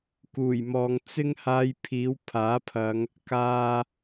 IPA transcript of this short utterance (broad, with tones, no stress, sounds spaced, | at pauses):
k uː˨˩ j m ɔː˨ ŋ t͡s ɪ˥ ŋ h aː˧ j pʰ iː˨˥ w pʰ aː˨˥ pʰ ɐ˨˧ ŋ | k aː˨